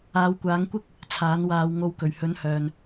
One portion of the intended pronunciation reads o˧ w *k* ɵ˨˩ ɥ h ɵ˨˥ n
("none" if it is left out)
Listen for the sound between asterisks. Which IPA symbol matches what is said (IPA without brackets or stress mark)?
k